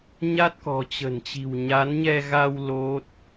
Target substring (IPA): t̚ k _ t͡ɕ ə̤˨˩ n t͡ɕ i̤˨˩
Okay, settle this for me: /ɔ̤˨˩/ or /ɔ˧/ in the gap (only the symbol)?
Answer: ɔ̤˨˩